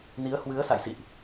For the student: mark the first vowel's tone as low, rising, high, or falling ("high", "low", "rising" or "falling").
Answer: rising